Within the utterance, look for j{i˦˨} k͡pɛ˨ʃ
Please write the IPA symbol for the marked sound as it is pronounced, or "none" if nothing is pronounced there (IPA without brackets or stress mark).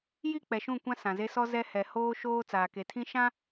i˦˨